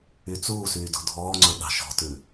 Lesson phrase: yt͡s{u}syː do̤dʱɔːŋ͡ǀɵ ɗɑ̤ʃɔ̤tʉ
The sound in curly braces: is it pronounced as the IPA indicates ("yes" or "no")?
no